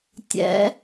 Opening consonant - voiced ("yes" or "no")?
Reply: no